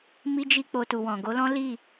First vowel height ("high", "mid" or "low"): high